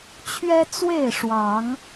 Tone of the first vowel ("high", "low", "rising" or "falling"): high